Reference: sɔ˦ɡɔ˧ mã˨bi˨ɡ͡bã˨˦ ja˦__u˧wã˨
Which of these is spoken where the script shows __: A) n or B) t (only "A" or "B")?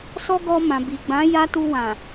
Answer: B